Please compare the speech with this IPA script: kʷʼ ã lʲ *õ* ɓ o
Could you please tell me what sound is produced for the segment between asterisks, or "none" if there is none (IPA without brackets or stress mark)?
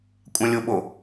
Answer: o